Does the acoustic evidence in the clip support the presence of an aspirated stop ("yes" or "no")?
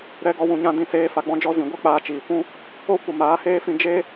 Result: no